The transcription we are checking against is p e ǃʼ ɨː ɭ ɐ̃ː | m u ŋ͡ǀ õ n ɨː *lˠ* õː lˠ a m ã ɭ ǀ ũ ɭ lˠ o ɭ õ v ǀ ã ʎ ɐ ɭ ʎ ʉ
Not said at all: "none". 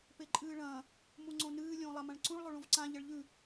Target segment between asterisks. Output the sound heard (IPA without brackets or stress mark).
lʲ